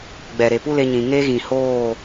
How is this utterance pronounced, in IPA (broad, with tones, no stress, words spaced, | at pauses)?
ɡ͡bɛ˨ ɾe˨pu˦le˧ɲĩ˨ ŋe˦ɣĩ˨hoː˦˨